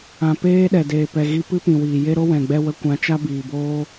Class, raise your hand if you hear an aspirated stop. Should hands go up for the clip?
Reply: no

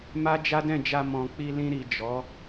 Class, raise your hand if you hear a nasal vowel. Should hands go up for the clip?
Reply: yes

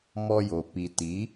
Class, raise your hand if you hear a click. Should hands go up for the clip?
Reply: no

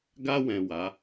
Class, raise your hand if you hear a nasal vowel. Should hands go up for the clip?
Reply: yes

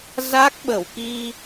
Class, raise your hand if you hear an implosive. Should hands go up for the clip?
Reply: yes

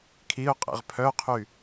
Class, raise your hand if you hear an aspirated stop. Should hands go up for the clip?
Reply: yes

